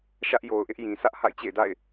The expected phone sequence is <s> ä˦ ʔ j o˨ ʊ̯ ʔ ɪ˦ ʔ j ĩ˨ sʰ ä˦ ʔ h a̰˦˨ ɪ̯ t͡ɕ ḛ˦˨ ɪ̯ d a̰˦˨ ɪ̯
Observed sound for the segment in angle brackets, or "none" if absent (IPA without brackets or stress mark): ʃ